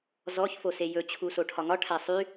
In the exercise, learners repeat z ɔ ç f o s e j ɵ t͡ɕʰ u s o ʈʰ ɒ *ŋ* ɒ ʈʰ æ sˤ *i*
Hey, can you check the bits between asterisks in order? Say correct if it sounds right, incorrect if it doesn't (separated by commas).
correct, incorrect